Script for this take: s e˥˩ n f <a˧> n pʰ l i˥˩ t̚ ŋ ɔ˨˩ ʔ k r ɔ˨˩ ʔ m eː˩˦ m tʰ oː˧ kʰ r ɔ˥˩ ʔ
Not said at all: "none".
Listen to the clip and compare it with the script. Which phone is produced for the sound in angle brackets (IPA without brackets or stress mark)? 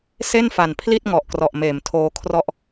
a˨˩